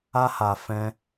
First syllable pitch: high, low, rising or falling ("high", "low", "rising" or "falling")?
high